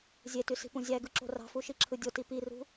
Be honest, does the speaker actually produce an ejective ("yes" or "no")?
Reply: no